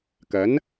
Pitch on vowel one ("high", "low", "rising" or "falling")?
rising